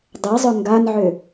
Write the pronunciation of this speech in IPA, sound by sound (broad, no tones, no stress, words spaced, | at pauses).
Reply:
dˤɛzˤʊ ŋɡanʕø